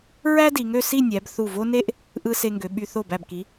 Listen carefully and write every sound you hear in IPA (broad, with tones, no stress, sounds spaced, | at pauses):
ɹ æ˥ d i˩˧ ŋ ø˧ s i˥˧ nʲ æ˩˧ b θ u˧˩ v o˥ n e˥ ʔ | ʔ ɯ˧ s e˧ ŋ ɡ ø˩˧ ɓ y˧ θ o˧˩ b æ˧˩ b k i˩˧